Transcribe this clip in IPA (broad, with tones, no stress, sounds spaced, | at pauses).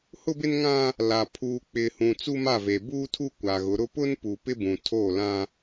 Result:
h ʊ˦ b ɪ˦ n ŋ ã˦ | l a˨ pʰ uː˨ k͡p ɪ˨ h ũ˨ t͡s u˦ m a˦˨ v e˨ b uː˦ tʰ u˦ kʷ a˨ ɣ ʊ˨˦ ɾ ʊ˦ p ʊ˦ n p u˨ p ɪ˦ b ũ˨ tʰ oː˦˨ l ã˦